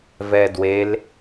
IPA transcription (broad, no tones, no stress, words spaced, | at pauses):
vɛdwel